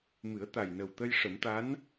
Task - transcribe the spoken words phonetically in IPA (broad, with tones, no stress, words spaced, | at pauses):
mɨ˨˩˦ə̯t̪a˨˩jnə˨˩wt̪ə˧j ʂə˨˩˦mt̪a˧˥n